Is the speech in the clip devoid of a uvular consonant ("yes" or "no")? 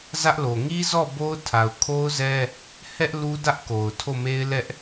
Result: yes